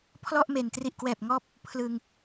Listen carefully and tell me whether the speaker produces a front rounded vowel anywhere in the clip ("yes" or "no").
no